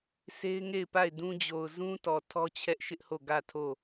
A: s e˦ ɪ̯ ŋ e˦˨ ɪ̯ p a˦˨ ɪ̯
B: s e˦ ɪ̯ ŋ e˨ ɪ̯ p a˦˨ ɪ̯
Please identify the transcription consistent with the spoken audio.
A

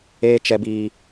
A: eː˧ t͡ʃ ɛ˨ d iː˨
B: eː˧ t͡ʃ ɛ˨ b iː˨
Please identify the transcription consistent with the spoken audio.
B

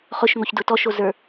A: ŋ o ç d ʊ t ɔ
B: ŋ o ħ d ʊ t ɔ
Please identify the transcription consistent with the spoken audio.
A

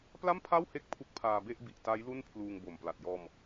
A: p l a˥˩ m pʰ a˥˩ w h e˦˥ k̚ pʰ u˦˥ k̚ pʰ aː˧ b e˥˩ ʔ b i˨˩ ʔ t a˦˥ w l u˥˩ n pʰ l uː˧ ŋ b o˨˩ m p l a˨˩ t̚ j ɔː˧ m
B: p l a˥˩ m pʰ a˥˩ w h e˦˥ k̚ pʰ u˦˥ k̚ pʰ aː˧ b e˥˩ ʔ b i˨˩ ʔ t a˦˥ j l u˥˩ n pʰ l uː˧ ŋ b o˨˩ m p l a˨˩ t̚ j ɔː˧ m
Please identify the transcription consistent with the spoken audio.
B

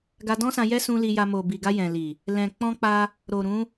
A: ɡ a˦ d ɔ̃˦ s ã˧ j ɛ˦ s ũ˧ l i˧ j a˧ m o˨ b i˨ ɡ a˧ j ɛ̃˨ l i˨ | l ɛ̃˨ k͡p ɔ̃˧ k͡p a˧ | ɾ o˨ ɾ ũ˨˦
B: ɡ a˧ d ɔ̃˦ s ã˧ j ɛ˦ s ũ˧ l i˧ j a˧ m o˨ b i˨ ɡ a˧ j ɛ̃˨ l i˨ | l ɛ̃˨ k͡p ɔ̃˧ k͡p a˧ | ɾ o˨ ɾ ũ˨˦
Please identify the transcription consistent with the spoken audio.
B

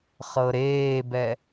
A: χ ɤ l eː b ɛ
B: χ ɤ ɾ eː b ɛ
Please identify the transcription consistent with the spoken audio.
B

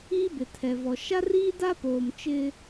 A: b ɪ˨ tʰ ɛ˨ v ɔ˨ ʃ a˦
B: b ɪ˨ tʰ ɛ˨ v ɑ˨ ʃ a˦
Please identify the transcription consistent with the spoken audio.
A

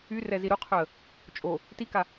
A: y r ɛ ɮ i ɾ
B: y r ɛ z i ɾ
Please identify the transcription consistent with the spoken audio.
B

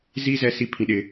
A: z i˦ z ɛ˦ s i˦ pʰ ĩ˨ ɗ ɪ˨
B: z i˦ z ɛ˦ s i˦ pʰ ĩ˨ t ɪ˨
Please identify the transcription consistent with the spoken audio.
A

